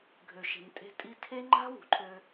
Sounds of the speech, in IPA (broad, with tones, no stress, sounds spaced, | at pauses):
ɡʱ ø˨ ʃ e̤˨ m tʼ e̤˧ tʼ i˧ tʰ e˦ ŋ͡ǃ a̤˦ w ṳ˨ ǃʰ ø˧